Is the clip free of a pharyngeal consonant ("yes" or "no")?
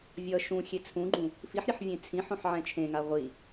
no